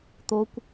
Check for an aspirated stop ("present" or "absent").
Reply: absent